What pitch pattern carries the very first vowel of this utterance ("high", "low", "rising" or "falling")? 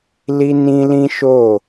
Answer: high